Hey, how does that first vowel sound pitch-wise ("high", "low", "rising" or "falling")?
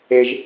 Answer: low